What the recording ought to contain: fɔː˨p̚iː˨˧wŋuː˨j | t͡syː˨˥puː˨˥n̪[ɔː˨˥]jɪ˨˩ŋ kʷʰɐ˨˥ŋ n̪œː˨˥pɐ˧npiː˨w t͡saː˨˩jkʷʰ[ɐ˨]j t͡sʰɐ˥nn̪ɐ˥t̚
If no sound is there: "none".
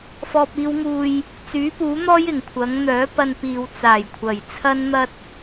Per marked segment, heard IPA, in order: ɔː˥, ɐ˨˩

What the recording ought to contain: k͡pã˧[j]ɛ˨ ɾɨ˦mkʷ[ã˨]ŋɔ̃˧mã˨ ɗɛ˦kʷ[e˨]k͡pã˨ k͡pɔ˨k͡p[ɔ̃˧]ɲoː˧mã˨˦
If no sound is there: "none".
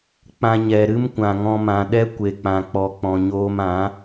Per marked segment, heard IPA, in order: ɲ, ã˨, e˨, ɔ̃˨

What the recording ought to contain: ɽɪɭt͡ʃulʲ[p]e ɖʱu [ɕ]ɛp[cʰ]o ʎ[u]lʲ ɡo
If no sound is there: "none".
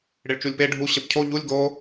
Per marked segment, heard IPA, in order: p, ɕ, cʰ, u

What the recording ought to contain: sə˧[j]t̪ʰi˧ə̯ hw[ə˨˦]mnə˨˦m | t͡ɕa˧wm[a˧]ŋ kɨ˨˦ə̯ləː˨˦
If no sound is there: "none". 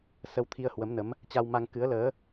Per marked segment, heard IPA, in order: w, ə˨˦, a˧

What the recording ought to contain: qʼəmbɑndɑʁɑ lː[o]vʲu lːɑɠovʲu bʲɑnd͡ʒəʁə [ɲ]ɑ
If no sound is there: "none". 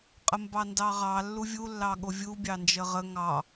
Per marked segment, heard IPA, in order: u, ŋ

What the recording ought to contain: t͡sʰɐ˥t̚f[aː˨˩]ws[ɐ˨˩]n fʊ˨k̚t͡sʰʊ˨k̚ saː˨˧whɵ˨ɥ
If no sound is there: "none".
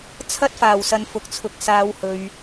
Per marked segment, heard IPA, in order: aː˨˩, ɐ˨

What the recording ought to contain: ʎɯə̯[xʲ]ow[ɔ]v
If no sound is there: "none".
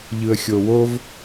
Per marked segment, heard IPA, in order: xʲ, o

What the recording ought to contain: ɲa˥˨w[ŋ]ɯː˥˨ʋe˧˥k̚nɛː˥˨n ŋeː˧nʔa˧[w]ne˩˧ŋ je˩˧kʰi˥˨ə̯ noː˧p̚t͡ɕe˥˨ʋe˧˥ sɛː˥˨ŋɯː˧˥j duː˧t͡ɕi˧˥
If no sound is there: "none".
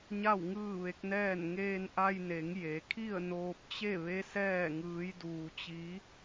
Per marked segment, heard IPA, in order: ŋ, j

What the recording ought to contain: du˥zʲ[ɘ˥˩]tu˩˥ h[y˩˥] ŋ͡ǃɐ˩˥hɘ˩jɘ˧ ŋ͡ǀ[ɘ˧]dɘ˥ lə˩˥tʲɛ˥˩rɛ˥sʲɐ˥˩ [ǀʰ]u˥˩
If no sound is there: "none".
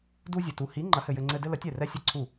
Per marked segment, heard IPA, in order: ɘ˩, i˩˥, ɘ˧, ǀʰ

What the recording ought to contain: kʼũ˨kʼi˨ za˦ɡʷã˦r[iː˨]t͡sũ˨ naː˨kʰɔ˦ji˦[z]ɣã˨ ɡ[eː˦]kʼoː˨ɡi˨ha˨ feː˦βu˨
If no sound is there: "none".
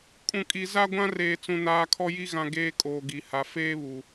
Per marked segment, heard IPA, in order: eː˨, none, eː˦

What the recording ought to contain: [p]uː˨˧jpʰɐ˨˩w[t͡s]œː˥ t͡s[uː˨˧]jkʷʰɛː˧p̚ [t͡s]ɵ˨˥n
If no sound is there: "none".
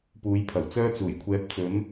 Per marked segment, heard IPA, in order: p, t͡s, uː˨˩, t͡s

